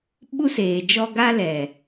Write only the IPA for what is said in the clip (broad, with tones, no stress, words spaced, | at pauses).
ɓu˦seː˨d͡ʒɔ˦ ɡa˦lɛ˨